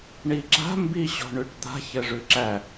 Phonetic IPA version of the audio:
ɳiǁa̤ mbiɕɔ̤ɳʉʈd̪a̤ç ɘʐʉǁæ

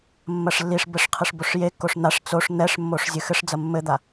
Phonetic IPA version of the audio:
mːɐʂlːiʂbɘʂ qʰɨʂboʂjekːoʂ n̪aʂ t͡soʂ n̪ɛʂmːoʂ zʲɨxɘʂd͡zɐ mːɘd̪a

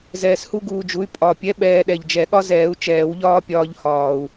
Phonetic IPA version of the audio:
zɛː˧shu˥ɡuː˧d͡ʒu˨˥y̯ pʼɒ˨˩pʲɛ˨˥ ɓɛː˧ ɗɛ˨˩ʎd͡ʒɛ˨˩˦ɠɒ˥zɛː˨˩˦u̯ t͡ʃɛː˨˩˦wʎɒː˥pʲɒː˧ʎhɒː˨˩u̯

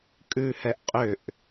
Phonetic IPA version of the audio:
kʼʉhɛʔ qʼʏʔ

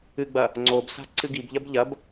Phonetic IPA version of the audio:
ɨɡ͡bɐ | ŋ͡ǀob sa̤ǀɨɡibʎɐb ʎɐb

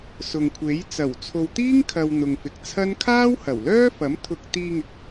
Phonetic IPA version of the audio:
sʊ˨ŋkʷʰe˨˥j t͡sɐ˨˩w t͡sʰo˨wt̪iː˥ŋkʰɐ˨w n̪ʊ˨ŋfɪ˨k̚t͡sʰɐ˥n kʰaː˥whɐ˨˩wlœː˥fɐ˨˥m t̪ʰʊ˧k̚ t̪iː˧ŋɪ˨˥k̚

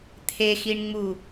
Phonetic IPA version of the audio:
t̪ʰexiɳŋ͡mu

